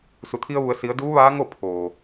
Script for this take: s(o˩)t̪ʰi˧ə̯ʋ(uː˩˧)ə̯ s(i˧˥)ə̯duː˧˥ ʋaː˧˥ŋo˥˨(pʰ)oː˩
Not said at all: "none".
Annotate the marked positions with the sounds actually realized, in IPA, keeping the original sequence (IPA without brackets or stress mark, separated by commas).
u˩, u˩˧, i˩˧, pʰ